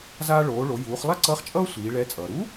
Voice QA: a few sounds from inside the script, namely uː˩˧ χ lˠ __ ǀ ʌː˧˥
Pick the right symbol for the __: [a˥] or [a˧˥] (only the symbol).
a˥